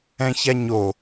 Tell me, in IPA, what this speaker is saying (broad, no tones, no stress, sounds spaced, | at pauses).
ɛ̃ ç a ɲ o